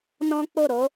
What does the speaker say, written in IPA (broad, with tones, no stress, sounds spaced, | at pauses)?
n ɔ̃˦ k͡p o˦˨ ɾ o˨˦